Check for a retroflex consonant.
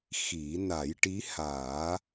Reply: present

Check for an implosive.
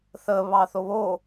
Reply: absent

